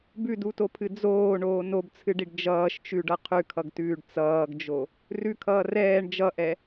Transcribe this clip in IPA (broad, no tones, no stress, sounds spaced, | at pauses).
b ʉ d u t o pʰ ɨ d͡z oː ɳ oː n o b t͡sʰ ɨ ɖ i ɖ d͡ʒ ʌː ʃ t͡ʃ ʉ ɖ ʌ qʰ ʉ kʰ ʌ ɡ t ʉː ɖ t͡s ʌː ɡ d͡ʒ o | r ʉ kʰ ʌː r ɛː ɳ d͡ʒ ʌ ʔ ɛ